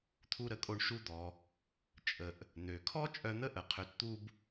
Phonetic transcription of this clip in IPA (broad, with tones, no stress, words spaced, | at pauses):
t̪ʰu˧ɾə˧kʼo˧ɳ ʃu˧d̪ɔ˩ | t͡ʃʼə˩ʔ | n̪ø˩kʰɔ˥ t͡ʃʼœ˧n̪ə˥ʔə˩ qʰø˧tt̪u˥b